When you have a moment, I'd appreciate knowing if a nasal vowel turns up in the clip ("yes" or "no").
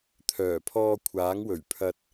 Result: no